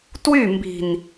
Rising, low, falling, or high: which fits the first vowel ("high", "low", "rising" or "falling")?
falling